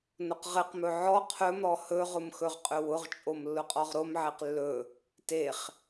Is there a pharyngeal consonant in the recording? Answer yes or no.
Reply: yes